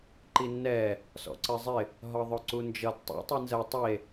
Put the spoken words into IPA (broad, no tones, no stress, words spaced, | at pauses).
ǃinːɛ | sɔ̰ǀɜzˤɪ | ɦɒðˤʊǀund͡ʒʌd tˤḭ tˤinzɜ tˤie̯